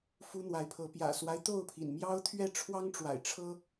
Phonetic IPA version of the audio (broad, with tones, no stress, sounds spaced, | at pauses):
f u˦ n̪ w a˨˦ ɪ̯ pʰ ɤ˨˦ p j ä̰˨˩ s w a˦ ɪ̯ t̪ o˥˨ ʊ̯ pʰ ḭ˨˩ n m j ɑ˦ ʊ̯ t̪ʰ ɥ ɛ˥˨ ʈ͡ʂʰ w ɑ˦ ŋ ʈ͡ʂ w a̰˨˩ ɪ̯ ʈ͡ʂʰ ɤ˦